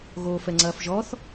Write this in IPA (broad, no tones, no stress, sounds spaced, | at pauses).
ɣ oː f ɛ ŋ͡ǀ ɐː f ʒ ɔ θ